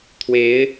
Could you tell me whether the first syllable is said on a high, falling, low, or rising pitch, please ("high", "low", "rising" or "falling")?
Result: rising